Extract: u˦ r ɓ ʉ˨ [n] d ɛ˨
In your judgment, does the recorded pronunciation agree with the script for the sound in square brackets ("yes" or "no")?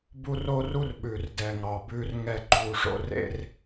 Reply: no